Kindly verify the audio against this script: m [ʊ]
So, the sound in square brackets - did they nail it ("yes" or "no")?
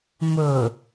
yes